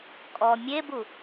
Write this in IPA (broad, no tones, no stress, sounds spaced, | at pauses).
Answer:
kʼ ɔ mʲ e b u